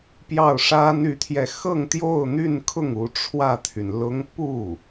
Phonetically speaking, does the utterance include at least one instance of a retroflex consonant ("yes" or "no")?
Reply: yes